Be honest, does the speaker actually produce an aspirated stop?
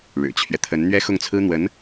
yes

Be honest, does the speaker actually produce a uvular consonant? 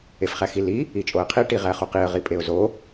yes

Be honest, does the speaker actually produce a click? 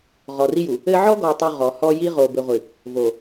no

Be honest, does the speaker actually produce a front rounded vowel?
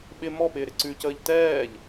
no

